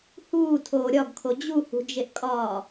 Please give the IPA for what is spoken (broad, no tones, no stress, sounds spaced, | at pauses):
h uː tʰ oː ɾʲ ɒ ɡ kʰ o d͡ʑ u h ṳ d͡ʒ e ʔ kʼ ɒː